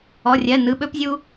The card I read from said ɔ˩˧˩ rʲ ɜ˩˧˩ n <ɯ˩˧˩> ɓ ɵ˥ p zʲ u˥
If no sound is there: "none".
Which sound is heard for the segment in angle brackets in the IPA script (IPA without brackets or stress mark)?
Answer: ɯ˩˧˩